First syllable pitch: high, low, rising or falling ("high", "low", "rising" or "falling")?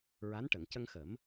rising